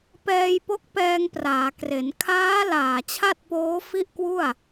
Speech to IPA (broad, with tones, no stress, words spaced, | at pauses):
pɛː˧jpo˦˥k̚pɛː˧ŋpraː˩˦ kre˩˦n kʰaː˦˥ laː˨˩t͡ɕʰa˥˩t̚poː˦˥ fi˥˩ʔkwu˥˩a̯